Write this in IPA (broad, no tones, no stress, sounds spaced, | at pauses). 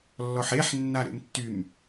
lː ɔ ħ e ħ nː a ɾ ḛ m tː y m